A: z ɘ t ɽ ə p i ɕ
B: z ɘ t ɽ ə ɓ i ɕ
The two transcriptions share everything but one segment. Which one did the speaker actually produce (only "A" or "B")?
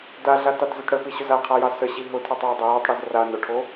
A